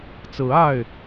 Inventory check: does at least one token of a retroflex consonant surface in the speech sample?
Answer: no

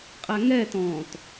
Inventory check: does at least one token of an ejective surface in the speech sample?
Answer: yes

